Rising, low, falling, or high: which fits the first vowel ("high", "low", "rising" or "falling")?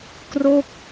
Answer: falling